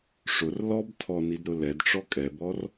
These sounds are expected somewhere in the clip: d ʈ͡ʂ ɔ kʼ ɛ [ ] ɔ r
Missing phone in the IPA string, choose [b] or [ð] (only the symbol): b